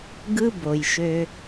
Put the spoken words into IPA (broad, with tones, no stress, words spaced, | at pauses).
ɡɯ˦bo˨j ʃø˦